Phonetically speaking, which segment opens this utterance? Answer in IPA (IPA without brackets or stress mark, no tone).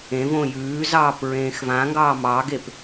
ẽ